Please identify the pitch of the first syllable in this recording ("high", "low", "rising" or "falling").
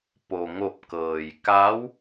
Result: low